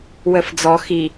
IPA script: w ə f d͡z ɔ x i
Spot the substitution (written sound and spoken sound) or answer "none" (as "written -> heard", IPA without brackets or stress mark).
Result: none